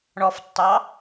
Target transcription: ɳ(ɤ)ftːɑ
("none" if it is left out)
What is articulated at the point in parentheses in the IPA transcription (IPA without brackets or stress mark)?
ɔ